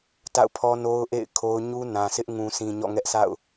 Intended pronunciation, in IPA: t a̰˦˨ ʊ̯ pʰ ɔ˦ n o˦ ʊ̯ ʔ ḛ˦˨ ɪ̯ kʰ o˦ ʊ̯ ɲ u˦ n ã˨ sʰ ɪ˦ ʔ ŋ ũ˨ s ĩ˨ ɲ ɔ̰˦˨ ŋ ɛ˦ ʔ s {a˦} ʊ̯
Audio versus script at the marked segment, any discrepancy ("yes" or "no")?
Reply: yes